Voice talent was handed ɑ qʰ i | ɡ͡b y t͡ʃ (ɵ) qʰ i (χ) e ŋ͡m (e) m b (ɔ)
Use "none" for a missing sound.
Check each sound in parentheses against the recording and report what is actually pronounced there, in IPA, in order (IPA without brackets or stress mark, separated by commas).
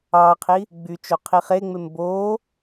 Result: o, χ, e, o